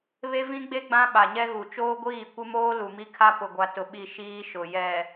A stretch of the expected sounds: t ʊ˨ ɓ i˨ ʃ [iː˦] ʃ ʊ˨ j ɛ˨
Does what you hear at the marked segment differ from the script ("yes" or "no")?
no